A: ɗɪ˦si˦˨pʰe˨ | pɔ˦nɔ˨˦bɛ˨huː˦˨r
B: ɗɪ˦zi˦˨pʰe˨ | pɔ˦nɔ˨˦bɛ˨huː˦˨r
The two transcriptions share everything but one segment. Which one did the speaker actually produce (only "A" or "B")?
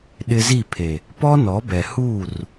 B